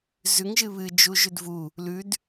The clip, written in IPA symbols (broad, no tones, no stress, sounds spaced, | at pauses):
z ʉ ŋ ʒ ɨ β ɨ d͡ʒ u ʒ ʉ d v u | l ʉ d